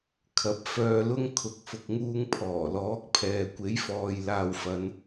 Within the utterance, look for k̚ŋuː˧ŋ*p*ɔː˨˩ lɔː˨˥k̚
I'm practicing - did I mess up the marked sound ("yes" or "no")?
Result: yes